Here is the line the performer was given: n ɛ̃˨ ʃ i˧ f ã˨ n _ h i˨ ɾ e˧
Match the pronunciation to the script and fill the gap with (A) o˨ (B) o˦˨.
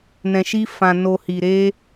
A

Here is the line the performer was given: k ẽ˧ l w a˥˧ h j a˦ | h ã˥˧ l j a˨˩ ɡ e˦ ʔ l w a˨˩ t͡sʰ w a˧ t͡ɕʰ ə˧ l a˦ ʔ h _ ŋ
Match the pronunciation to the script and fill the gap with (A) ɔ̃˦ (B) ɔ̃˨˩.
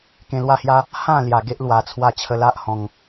B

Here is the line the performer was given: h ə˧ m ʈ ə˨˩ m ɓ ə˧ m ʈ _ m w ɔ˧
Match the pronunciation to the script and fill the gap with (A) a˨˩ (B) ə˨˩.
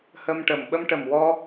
B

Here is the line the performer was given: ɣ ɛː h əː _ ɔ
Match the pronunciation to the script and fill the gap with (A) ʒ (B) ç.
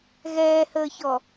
B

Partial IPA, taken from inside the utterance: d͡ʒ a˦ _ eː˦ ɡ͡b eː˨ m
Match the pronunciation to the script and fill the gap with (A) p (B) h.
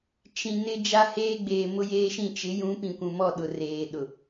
B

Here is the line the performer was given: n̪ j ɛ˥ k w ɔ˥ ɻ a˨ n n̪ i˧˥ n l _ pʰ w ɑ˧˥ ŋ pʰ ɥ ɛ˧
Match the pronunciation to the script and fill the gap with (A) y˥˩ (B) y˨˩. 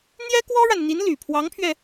B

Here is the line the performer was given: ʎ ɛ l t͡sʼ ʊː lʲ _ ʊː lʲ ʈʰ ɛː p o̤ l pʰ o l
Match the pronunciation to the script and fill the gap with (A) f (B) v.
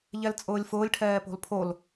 A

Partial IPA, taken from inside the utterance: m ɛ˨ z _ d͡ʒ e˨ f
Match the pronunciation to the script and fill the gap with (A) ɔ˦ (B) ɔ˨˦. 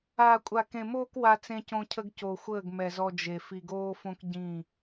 A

